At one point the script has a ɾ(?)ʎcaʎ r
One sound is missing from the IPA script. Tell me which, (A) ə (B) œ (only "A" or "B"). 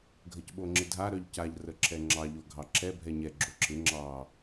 B